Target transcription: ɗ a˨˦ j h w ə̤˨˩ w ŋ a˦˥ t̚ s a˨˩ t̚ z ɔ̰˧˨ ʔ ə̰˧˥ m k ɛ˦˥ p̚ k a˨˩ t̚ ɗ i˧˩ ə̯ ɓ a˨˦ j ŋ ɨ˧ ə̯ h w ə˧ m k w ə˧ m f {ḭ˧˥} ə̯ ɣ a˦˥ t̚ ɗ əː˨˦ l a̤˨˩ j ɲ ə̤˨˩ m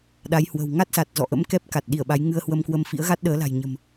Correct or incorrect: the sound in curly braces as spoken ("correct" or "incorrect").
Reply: correct